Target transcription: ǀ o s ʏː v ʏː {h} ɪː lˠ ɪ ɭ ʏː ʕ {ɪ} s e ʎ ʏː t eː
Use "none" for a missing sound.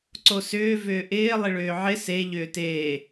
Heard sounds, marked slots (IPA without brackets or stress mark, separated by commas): ʔ, ɪ